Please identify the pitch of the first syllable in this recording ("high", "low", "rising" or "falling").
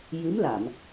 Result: rising